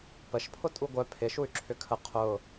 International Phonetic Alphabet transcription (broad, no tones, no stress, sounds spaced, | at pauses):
p ə ʃ pʰ ʊ tʼ u ɡʷ œ pʰ ɪ ʃ u y̯ ǁʰ ʏ kʰ ə qʰ ʊ